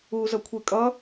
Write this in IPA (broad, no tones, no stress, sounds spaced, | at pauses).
uː z ʌ kʷʰ e kʼ ʌ